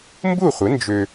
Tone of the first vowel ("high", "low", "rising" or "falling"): falling